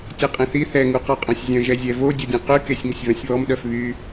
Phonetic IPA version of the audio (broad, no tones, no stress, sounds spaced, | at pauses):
tʲ ɛ qʼ ẽ θ i θ ɛ ŋ u q ɔ qʼ œ̃ sʲ zʲ œ̃ ʒ ɛ zʲ ɛ v o dʲ o dʲ ẽ q y k e sʲ ŋ ə sʲ v œ̃ sʲ β ɔ m ɗ œ f β y